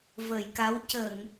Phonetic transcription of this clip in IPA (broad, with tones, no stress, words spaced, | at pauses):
vəː˨˩˨jka˧˥w cə˨˩˨ŋ